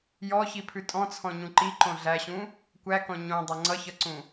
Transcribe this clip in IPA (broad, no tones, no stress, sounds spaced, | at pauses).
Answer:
j ɔ ç i pʰ ʉ tʼ ɔ̃ t͡sʰ ɔ̃ ɲ ũ ǃ i ǃ õ ɮ æ ɕ ũ | kʷ æ k ɔ̃ ɲ õ dˤ ʌ ŋ͡ǀ ʌ ç ʌ ǀ ũ